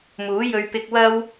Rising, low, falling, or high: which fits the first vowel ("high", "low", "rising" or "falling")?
rising